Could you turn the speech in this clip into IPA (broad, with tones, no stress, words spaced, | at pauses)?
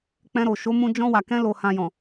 k͡pɛ̃˧ɾo˨ ʃo˨˦mũ˧ d͡ʒɔ̃˧wa˨kɛ̃˧ lo˨hã˨jɔ̃˨